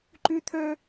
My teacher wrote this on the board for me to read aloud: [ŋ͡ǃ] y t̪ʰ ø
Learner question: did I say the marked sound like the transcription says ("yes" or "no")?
no